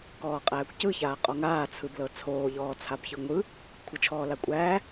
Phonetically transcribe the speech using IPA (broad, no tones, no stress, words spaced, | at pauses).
kɔːqʼæːkʷcɯ çaːqʼɔŋaː t͡sʰɯblɤt͡sʰoː ʎɔːt͡sʰabçɯŋʷɯ | kʷʰɤt͡ʃʰɔːlakʷʼæː